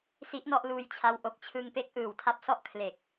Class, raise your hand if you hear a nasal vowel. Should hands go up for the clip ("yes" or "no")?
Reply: no